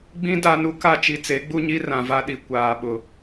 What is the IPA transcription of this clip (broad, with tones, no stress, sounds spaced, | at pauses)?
ɡ͡b ĩ˦ d a˦ n u˦ k a˦ t͡ʃ i˨ t͡s e˨˦ ɡ͡b u˦ ɲ i˦ r ã˨ v a˦ ɗ i˨ kʷ aː˨ ɓ ʊ˨